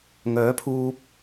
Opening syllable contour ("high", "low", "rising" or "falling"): rising